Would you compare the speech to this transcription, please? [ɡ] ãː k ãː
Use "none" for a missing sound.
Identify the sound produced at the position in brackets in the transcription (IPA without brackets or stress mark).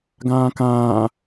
ɡ